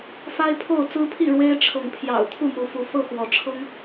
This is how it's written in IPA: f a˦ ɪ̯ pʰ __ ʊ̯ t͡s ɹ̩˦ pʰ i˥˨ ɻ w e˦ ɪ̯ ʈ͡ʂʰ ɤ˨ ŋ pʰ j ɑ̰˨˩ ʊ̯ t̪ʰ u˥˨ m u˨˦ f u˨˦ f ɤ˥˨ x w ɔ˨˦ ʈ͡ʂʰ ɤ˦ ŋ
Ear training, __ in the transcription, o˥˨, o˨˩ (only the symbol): o˥˨